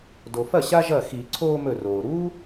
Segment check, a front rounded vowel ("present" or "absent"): absent